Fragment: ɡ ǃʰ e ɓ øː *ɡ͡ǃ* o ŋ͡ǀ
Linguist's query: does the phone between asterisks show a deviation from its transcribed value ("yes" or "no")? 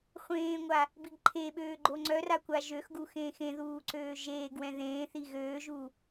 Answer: no